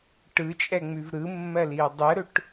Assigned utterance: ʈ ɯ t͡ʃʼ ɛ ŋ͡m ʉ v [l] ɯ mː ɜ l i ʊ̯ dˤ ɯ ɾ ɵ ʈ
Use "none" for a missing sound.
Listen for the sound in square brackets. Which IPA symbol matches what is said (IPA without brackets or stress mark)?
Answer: ɾ